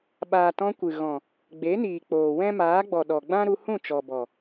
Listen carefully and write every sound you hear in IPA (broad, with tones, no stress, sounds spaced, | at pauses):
ɓ aː˨ t ɔ̃˧ kʷ ɨ˨ ɣ ɔ̃˨ | ɡ͡b e˨˦ n iː˨ k͡p oː˨ w ɛ̃˦ m aː˨˦ ɡ͡b ɔ˨ ɗ ɔ˨ ɡ͡b ã˦ ɾ u˧ h ũ˦˨ t͡ʃ ɔ˨ b ɔ˨